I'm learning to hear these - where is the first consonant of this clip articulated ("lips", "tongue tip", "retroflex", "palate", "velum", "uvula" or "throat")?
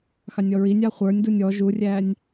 velum